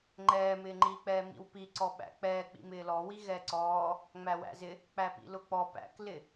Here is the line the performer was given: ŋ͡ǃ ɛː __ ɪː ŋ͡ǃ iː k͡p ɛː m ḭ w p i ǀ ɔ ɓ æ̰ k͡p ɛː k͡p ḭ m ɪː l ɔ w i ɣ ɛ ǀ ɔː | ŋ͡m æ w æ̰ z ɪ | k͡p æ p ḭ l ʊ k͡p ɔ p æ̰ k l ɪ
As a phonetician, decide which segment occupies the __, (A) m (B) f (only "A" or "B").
A